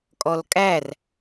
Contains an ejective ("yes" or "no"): yes